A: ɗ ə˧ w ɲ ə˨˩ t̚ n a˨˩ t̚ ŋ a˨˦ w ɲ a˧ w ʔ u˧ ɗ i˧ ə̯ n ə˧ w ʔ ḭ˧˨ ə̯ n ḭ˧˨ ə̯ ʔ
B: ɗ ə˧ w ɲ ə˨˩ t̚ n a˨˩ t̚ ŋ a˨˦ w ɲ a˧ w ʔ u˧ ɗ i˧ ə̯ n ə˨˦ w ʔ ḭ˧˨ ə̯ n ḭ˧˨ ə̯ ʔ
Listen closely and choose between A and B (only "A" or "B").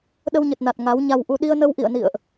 A